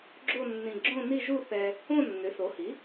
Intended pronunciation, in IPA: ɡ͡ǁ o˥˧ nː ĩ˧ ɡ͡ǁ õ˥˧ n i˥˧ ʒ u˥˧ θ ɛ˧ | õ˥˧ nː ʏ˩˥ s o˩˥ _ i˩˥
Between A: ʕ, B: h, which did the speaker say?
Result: B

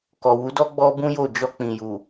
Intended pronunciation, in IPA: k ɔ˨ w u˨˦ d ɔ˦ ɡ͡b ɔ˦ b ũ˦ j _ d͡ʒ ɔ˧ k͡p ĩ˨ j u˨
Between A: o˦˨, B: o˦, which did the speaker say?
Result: A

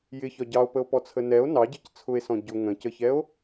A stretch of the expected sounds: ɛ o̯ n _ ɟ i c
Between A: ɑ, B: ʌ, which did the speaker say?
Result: A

